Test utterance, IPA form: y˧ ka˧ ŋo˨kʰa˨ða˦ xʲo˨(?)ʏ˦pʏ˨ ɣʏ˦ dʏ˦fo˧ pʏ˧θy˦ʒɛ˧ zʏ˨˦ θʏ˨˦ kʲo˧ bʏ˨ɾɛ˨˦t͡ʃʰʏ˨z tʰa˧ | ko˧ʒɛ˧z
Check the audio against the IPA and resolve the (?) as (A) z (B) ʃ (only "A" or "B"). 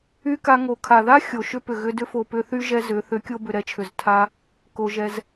B